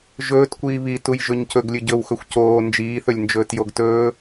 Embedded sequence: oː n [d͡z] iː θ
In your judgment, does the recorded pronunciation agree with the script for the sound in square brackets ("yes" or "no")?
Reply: no